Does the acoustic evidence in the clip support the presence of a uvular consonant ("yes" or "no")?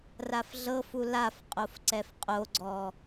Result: yes